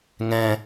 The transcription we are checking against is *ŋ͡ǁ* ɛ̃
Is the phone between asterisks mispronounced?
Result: yes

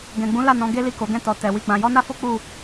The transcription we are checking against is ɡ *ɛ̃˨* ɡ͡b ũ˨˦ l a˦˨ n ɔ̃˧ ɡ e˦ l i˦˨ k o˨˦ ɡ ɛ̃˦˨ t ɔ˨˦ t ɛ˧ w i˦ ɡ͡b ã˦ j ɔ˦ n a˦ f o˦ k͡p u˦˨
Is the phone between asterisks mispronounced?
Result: no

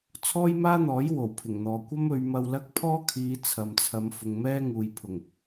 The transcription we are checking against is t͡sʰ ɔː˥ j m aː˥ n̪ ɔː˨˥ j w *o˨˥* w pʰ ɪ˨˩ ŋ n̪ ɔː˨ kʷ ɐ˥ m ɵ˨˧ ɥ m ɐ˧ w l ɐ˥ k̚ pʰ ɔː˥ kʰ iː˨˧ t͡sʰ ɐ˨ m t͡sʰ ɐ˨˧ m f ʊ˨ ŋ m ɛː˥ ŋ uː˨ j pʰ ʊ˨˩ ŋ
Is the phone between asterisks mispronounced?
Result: yes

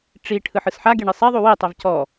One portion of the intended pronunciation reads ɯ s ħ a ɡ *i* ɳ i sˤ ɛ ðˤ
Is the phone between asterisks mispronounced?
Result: yes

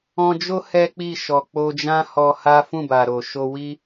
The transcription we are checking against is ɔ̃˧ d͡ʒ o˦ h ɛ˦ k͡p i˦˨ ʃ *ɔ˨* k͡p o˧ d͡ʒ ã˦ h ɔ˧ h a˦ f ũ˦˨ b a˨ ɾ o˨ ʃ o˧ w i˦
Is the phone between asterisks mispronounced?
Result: no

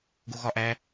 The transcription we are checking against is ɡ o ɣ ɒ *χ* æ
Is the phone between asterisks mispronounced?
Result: yes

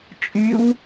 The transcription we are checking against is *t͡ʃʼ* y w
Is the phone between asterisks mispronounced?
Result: no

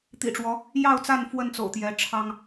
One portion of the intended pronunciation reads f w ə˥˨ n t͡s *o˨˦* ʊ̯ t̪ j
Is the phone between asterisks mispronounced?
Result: yes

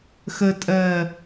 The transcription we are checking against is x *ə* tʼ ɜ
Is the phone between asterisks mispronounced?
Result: no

